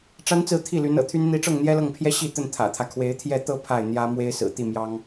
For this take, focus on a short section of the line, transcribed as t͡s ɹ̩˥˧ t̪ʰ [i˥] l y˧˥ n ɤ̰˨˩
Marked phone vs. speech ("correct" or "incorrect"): incorrect